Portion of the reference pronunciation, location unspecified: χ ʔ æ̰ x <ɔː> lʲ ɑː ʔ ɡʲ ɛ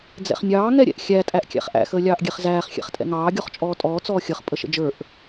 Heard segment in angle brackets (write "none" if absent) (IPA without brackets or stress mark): əː